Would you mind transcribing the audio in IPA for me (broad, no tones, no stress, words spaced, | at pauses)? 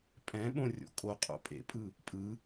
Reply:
pʼɛ̃ɓõ rʲo̰kʼoqʼo̰ pʼḛpʼɯ | pʼɯ